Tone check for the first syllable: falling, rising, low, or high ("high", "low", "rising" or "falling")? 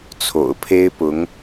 low